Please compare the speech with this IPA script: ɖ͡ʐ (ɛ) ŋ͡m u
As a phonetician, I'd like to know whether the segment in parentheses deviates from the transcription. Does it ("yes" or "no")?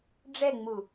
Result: no